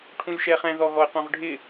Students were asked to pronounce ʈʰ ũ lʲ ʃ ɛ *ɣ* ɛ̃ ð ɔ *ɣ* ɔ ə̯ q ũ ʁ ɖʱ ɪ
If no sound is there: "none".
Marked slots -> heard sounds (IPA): χ, ɣ

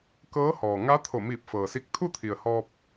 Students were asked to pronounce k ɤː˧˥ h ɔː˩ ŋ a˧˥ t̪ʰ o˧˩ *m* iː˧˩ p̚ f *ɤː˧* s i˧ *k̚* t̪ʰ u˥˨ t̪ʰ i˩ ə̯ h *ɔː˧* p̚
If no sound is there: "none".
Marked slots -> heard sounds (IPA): m, ɤː˩, k̚, ɔː˧

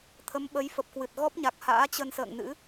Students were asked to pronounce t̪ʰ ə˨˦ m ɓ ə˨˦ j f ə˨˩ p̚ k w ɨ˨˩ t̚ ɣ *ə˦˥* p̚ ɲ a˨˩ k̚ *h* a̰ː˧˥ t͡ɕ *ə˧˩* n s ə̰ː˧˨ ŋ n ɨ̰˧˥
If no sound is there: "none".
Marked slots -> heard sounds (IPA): ɔ˦˥, h, ə˧

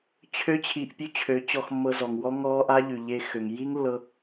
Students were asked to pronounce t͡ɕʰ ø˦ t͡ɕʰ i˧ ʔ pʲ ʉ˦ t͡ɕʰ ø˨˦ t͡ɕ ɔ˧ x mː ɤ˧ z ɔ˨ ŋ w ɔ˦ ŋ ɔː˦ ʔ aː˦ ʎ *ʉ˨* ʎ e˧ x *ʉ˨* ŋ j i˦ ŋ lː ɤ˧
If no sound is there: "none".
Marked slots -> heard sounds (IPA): ʉ˨, ø˨

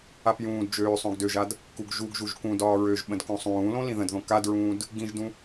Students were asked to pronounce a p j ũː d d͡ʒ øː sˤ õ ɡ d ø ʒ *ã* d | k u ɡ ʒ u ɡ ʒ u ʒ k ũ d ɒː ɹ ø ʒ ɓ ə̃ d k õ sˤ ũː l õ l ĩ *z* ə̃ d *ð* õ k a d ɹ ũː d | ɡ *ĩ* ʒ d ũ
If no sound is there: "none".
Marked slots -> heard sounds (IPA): a, ð, ð, ĩ

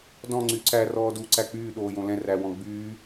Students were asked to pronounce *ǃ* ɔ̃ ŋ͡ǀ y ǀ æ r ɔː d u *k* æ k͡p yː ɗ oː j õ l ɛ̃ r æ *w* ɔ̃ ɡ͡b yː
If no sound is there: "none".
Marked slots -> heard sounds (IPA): d, ǀ, w

